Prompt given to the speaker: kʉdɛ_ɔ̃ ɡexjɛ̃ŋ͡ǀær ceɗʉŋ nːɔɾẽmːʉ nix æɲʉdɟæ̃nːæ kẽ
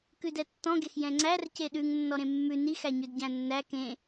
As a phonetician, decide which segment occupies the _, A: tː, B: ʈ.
A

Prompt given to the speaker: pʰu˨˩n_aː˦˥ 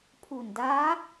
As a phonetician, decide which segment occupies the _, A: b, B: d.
B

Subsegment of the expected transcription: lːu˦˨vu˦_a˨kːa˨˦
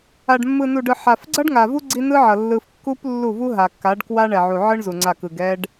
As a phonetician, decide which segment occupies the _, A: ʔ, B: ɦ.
B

